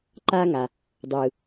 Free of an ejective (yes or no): yes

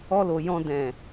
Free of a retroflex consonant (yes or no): yes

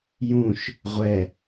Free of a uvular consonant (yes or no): no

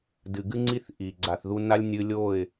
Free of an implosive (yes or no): yes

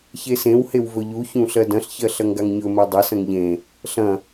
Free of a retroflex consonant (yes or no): yes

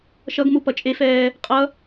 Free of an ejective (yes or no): no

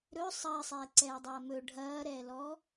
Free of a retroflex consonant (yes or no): no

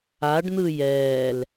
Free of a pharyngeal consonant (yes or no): yes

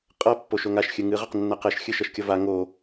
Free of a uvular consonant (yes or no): no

